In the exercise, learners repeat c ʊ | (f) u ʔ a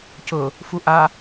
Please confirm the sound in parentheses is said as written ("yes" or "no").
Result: yes